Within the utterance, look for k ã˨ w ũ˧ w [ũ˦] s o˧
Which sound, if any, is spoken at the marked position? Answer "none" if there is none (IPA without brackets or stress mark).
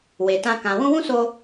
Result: ũ˦